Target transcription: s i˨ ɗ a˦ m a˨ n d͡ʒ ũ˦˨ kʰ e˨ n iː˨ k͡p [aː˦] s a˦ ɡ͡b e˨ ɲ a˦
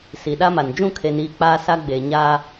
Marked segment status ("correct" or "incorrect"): correct